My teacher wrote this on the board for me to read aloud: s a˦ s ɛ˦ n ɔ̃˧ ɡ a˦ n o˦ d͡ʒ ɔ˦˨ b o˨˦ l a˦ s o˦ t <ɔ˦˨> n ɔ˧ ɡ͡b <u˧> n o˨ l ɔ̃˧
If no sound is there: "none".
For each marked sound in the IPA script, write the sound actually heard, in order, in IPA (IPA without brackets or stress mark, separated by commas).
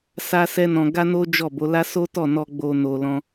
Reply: ɔ˦˨, o˧